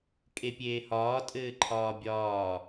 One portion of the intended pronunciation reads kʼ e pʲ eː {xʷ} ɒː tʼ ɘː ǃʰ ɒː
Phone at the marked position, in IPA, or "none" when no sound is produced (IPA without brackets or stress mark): h